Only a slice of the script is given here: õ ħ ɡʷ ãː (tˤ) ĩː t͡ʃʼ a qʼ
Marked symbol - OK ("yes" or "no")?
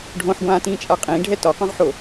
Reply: no